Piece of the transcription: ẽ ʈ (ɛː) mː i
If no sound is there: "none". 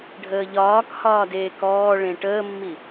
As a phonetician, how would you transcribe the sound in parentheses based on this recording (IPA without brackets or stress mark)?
əː